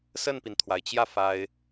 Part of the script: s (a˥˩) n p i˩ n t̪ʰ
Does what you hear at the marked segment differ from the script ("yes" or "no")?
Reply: yes